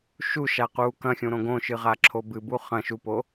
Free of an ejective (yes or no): yes